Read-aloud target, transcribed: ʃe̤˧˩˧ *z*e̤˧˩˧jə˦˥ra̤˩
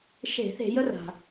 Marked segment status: incorrect: θ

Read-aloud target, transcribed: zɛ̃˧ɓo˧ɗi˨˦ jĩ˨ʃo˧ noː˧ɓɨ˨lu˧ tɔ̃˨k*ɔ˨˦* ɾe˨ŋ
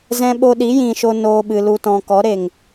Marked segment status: correct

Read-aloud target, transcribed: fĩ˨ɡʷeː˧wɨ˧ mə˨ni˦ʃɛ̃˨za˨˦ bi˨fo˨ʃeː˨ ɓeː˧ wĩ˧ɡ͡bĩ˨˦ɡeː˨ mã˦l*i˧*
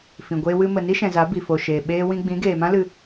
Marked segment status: incorrect: ɨ˧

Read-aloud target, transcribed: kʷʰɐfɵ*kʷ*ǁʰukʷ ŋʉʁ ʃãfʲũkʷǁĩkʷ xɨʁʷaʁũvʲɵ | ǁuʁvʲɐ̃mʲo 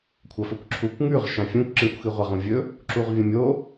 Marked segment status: correct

